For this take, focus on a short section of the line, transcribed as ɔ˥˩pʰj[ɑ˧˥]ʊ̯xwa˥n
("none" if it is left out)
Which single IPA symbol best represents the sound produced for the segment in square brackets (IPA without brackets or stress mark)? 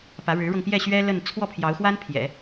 ɑ˧˥